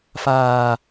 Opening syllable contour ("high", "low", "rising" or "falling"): low